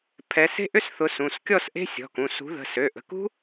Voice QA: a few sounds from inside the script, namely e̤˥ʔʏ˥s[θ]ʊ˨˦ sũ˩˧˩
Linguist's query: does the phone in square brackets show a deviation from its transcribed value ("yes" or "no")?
no